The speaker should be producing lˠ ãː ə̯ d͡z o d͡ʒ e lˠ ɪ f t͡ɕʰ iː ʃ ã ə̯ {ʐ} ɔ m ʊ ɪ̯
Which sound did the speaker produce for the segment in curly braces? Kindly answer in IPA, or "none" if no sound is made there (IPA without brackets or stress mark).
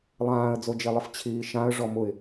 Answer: ʐ